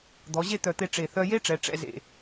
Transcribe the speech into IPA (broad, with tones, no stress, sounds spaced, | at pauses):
d̪ ɔ˩˧ ʑ e˥˧ t̪ œ˧˩ t̪ e˧ ʈ͡ʂ e˧˩ θ œ˧ j e˥ ʈ͡ʂ ɛ˩˧ ʈ͡ʂ ɛ̰˥˧ z ḛ˧˩